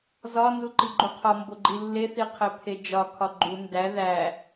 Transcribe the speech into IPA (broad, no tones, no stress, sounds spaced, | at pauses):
z ɒ n z u ǃ i ɡ͡ǃ u qʰ ɒ m b o ɡ͡ǃ i lː e θ i qʰ e pʰ e d͡ʒ ɒ kʰ ɒ ɡ͡ǃ u n d æ ð æ